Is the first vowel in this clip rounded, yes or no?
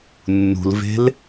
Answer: yes